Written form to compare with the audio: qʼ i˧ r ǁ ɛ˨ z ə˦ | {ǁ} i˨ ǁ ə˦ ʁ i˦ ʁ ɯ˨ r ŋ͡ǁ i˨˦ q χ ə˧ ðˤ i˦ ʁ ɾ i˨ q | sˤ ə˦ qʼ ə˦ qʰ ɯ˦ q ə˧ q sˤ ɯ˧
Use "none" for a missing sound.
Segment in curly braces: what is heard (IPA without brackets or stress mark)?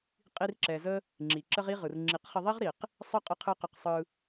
ŋ͡ǁ